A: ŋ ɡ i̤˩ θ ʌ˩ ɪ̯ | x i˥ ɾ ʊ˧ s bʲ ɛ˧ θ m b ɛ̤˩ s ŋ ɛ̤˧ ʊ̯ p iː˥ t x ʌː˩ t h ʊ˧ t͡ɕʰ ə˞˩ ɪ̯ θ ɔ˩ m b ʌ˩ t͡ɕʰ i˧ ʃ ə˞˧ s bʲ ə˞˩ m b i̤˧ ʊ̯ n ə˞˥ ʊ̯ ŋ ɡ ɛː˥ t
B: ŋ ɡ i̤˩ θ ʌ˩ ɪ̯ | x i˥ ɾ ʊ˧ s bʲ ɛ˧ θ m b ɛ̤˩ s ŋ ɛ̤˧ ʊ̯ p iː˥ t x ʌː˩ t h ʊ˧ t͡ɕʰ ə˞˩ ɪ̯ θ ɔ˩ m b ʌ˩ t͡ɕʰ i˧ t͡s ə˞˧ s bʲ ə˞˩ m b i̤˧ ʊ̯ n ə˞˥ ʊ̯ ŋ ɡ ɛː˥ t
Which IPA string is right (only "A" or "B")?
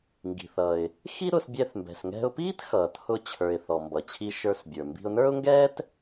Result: A